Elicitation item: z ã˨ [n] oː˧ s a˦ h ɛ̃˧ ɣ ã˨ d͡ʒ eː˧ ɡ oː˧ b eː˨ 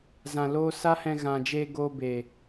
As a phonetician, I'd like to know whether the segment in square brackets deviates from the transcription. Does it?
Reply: yes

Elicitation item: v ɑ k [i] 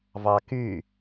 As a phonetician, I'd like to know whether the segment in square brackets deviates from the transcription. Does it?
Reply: yes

